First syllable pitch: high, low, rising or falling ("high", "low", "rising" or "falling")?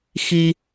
high